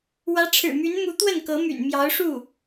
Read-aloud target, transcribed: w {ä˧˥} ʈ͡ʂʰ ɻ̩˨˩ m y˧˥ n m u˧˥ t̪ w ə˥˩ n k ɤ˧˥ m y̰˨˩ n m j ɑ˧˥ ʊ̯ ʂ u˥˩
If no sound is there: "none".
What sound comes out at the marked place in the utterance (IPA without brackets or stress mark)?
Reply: ä˧˥